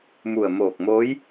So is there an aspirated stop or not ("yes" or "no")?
no